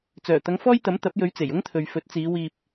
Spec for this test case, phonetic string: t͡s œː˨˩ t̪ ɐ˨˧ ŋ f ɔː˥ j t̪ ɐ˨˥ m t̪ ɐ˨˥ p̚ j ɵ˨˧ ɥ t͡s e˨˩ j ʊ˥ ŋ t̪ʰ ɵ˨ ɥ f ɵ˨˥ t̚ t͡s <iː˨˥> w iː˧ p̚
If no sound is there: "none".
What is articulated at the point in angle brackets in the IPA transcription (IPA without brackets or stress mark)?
iː˨˧